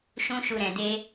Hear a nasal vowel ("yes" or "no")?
yes